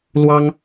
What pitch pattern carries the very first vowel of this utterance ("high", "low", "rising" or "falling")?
high